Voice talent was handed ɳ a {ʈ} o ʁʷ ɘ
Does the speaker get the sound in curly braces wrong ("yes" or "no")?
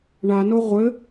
yes